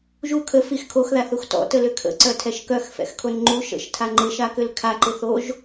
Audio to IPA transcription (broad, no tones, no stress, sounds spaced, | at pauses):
ʒ u kʰ ə f i x kʰ o x ð a θ u x t ɔ̰ t ə l ʏ kʰ ə̰ ǀ œ tʰ ɛ ʃ k œ x f ɛ̰ x kʰ o n ŋ͡ǃ u ʃ ə̰ ʃ tʰ a ŋ͡ǃ ɪ ʃ a k ʏ l kʰ a ǃ ɪ θ o ʒ